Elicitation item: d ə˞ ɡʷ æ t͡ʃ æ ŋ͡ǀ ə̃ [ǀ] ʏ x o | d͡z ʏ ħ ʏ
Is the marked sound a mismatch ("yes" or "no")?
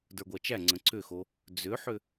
no